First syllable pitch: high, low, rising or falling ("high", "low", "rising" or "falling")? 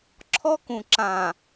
high